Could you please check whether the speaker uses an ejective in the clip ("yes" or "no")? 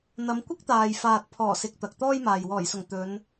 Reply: no